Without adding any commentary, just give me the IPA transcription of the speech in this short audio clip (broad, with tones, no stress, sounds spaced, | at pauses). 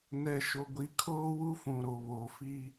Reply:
n ɛ˨ ʃ o˨ ɡʷ i˨ kʰ oː˦ w u˦ f ũ˨ ɾ o˨ β o˨ f i˦